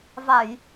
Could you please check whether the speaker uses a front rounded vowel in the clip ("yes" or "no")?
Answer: no